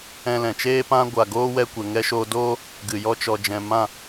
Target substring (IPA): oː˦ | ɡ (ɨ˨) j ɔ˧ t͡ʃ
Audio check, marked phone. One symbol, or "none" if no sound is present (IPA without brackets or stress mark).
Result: ɨ˨